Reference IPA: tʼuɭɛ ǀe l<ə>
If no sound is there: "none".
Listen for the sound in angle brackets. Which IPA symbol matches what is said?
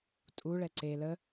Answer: ə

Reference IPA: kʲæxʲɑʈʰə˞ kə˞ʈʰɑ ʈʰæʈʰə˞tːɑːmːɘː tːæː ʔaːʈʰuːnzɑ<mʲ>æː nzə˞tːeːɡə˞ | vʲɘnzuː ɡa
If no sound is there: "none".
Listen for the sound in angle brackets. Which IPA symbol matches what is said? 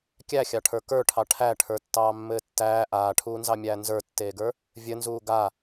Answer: mʲ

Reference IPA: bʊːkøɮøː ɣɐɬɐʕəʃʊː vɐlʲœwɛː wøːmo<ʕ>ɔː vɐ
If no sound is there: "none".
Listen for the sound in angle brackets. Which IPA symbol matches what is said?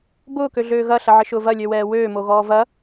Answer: ɣ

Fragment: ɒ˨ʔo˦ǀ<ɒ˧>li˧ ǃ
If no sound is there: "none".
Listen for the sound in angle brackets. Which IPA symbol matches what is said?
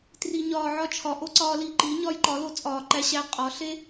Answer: ɒː˧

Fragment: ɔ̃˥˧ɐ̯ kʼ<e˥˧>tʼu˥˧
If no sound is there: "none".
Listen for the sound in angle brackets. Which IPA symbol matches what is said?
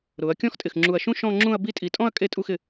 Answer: e˥˧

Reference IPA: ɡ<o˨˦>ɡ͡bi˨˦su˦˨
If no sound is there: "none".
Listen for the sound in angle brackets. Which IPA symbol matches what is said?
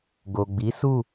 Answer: o˨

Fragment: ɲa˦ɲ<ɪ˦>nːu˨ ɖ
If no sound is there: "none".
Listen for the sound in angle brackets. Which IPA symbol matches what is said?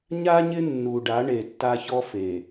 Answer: ɪ˦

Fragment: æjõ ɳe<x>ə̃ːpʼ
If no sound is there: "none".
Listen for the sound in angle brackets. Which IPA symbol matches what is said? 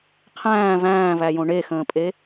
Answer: x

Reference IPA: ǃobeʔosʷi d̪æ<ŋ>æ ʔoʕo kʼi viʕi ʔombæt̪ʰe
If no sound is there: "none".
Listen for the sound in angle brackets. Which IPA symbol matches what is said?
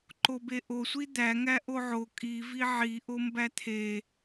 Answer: ŋ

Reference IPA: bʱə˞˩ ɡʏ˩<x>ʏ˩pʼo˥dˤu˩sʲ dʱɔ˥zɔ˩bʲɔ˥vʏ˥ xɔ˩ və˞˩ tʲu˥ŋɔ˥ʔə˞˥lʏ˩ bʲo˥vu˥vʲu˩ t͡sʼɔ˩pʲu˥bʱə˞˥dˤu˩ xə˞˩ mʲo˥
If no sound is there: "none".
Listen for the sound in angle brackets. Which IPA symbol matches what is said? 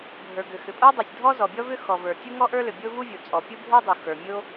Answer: x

